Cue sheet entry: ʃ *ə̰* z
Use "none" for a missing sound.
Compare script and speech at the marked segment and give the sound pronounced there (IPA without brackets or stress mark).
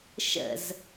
ə̰